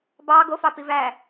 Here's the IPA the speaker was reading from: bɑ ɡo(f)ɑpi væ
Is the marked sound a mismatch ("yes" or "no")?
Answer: no